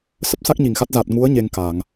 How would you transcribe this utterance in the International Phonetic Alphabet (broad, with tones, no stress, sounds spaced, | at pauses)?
s ə˦˥ p̚ s a˦˥ k̚ ɲ i˧˩ ŋ x a˦˥ t̚ z a˨˩ t̚ ŋ u˨˦ ə̯ ɲ e˧ ŋ k a˧˩˨ ŋ